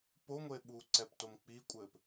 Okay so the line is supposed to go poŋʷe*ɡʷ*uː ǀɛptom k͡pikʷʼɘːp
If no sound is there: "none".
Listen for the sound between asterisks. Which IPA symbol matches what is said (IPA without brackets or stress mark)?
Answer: ɓ